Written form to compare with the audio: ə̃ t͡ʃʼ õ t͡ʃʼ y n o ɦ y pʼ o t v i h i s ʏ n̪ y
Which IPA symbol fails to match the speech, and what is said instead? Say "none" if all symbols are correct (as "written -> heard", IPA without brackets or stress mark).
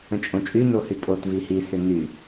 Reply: ɦ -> h